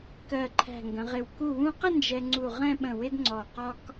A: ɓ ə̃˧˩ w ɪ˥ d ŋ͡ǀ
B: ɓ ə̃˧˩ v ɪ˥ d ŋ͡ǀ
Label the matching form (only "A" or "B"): A